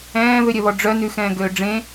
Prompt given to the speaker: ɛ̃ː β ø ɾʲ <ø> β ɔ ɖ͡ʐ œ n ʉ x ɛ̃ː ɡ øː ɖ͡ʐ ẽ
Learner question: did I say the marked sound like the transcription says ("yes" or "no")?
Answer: no